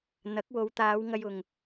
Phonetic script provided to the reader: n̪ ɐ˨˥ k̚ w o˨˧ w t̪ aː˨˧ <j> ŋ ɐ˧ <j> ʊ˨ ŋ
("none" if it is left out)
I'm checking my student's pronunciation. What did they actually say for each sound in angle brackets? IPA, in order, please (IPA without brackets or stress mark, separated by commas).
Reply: w, j